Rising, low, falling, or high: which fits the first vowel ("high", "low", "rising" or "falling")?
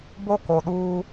high